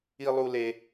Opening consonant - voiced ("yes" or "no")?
yes